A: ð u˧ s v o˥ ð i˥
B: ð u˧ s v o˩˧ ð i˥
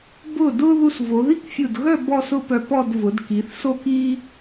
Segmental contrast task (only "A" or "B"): B